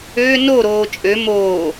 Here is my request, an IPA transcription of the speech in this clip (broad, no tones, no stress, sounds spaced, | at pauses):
ø n o ɾ oː t͡ʃʼ ø m oː